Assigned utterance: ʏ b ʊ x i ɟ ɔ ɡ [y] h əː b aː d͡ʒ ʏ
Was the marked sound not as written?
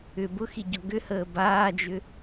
yes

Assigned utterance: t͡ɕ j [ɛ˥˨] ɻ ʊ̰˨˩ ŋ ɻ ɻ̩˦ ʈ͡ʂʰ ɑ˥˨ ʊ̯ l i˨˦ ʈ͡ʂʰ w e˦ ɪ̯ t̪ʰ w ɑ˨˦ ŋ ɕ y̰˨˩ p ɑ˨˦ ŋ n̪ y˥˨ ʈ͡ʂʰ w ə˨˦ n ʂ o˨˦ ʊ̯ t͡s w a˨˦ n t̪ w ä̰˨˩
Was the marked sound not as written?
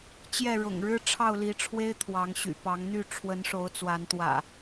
no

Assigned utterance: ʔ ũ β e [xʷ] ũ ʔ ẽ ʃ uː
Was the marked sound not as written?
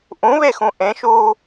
yes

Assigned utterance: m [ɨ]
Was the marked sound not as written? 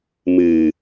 no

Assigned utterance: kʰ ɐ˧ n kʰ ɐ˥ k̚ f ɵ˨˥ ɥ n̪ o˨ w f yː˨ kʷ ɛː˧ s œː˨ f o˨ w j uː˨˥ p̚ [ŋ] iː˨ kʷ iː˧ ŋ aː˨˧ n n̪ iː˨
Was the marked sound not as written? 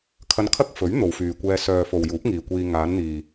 no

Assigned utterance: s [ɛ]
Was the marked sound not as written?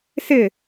yes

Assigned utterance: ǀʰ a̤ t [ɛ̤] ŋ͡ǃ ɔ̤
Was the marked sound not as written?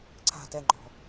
yes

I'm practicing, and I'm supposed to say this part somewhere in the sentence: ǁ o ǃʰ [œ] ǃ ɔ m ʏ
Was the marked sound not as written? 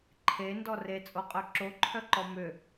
no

